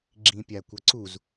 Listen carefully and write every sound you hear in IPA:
ɡ͡ǁ ĩ pʲ a kʷ ɐ ǀ u z

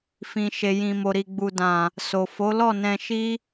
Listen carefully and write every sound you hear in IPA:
f ĩ˨ ʃ e˨ j ĩ˨ m o˨ ɾ i˨ ɡ͡b u˨ d ã˨ | s o˨ f o˨˦ l ɔ˦˨ n ɛ̃˧ ʃ i˦

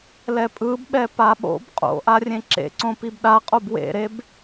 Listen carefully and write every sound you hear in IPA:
l ɛ pʼ ɯ b ɓ ɛ p a ɓ o̰ b qʼ o̰ ʔ a rʲ ẽ ǁ ḛ ǀ õ p i b ɗ a qʼ o b w ḛ ɾ e b

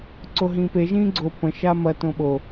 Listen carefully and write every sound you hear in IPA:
ǀ o ɦ ĩː p e ʒ ĩː ɡ͡ǀ o p ə̃ ʃ a m ɐ t õ ɓ o

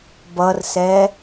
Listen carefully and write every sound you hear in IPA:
b ʌ r s ɛ

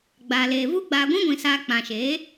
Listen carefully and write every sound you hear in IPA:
ɡ͡b a˨ l eː˨ v u˦ ɡ͡b aː˧ ɡʷ ĩ˦ ɡʷ ĩ˨ s aː˧ k͡p ã˨ ʃ eː˨˦

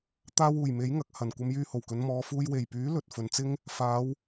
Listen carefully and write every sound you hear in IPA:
t̪ aː˧ w uː˨˩ j m e˨˥ j ŋ ɐ˨ k̚ h ɐ˨˩ n kʷ ɐ˧ m j yː˧ h o˨˩ w k ɵ˨˧ n m ɔː˨˧ f uː˧ j w e˨˩ j p yː˨˥ l ɵ˨ t̚ f ɵ˨ n t͡s ɪ˥ ŋ | f aː˨˧ w

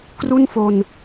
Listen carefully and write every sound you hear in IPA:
k r u˥˩ n f o˧ n

